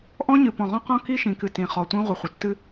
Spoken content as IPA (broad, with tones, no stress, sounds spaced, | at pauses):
ʔ ɔ̃˦ ɲ ɨ˨ p ɔ̃˨ ʁ ɔ̃˦ q ɔ̃˦ k i˦ ʃ ĩ˨ k ɨ˨ t ĩ˨ χ ɔ˨ tʷ ĩ˦ ʁʷ ə˨ χʷ ə˨ tː ɨ˦